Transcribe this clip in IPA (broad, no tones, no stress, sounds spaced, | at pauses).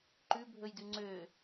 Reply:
ǃ ʉ bʱ ɵ j d ʉ ŋ͡ǀ ø